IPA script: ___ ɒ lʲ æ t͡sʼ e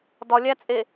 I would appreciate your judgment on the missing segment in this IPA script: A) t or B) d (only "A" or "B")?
B